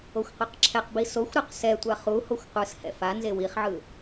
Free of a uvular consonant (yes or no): no